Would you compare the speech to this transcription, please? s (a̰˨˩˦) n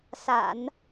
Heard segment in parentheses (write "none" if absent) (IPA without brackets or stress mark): a̰˨˩˦